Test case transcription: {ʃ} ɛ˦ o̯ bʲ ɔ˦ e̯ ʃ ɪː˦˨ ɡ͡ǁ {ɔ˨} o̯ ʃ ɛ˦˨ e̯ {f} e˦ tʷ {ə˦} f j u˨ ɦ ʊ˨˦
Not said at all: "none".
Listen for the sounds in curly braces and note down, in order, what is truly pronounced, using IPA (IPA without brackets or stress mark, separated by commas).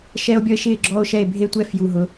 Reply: ʃ, ɔ˦, bʱ, ɛ˦